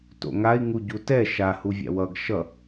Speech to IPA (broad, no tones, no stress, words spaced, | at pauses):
to̰ŋai̯ ŋuɟutɛ ʃahuvʲa̰ wʌɡ ʃʌ